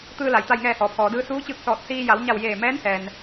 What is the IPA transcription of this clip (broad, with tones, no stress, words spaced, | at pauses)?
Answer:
t̪ɯː˧la˩j t̪a˧˩jŋɛː˧˩ hɔː˩˧pʰɔː˩˧dɯː˧˥ suː˧˥t͡ɕɯː˧k̚ sɔː˧˩t̚siː˧ ja˩˧wɲa˧˩wjeː˧˩ mɛː˧˥nhɛː˩n